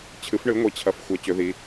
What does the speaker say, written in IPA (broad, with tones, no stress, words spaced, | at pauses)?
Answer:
t͡ɕʰɨ˩˥fɳɨ˩˥ŋʷi˩˧ t͡ɕʰɐ˩˧fxʷɐ˩˧ t͡ɕɵ˩˧ði˩˧